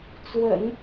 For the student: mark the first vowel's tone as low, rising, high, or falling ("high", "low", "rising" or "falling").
low